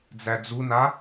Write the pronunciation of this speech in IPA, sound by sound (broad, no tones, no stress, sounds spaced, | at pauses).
d͡z æ d͡z u n a